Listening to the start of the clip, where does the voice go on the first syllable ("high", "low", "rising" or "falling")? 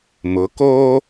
rising